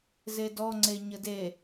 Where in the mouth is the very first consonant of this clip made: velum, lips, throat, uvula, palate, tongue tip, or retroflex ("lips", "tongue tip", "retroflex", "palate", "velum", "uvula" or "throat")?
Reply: tongue tip